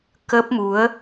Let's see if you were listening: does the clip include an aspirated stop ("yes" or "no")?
no